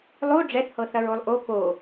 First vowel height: mid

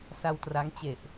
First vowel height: low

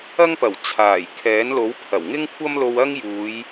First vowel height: low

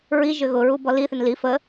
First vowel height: high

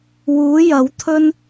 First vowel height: high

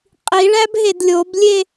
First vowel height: high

